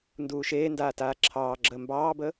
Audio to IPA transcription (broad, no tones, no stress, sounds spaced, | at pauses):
n d uː ʃ eː n d aː t aː ǁʰ ɑː ɡ͡ǁ əː m b ɑː b ə